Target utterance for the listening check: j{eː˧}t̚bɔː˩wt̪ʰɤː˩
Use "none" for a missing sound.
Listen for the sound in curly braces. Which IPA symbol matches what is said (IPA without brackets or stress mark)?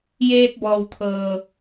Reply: eː˧